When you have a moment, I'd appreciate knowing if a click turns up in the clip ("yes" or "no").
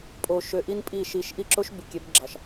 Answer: yes